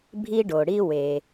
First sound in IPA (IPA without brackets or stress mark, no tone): bʱ